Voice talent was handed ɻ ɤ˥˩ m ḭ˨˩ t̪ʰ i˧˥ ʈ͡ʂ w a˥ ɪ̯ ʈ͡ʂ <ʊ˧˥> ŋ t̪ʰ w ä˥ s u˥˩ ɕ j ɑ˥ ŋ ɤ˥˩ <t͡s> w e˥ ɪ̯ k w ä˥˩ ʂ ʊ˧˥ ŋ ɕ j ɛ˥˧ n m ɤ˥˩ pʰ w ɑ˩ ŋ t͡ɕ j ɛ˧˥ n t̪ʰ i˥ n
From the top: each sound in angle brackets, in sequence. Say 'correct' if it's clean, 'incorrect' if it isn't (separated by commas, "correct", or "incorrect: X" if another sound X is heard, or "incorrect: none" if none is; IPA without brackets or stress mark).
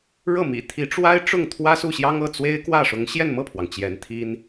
incorrect: ʊ˥˩, correct